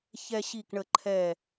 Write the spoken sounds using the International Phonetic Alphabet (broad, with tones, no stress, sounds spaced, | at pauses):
ç ɛ˦ ɕ i˦˨ k ɳ ə˦˨ ǃʰ ɛ˦˨